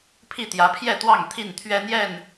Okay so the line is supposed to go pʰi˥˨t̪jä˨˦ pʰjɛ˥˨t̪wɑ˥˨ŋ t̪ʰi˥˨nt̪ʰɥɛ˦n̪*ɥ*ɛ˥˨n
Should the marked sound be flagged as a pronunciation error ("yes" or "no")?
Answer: yes